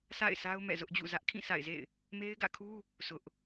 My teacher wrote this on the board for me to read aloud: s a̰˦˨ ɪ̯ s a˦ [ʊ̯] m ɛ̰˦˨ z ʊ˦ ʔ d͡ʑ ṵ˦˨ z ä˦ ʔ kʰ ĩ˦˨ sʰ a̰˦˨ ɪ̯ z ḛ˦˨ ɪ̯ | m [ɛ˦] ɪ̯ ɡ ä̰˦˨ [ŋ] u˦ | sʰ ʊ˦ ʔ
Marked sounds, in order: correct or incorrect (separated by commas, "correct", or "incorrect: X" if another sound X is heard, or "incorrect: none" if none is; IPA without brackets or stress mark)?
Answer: correct, incorrect: e˦, incorrect: kʰ